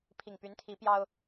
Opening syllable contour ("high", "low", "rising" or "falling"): low